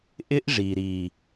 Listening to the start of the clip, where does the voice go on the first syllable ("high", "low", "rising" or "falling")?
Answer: high